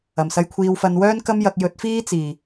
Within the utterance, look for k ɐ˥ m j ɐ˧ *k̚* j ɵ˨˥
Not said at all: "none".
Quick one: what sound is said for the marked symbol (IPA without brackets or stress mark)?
k̚